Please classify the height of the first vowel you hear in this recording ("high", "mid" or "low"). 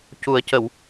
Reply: high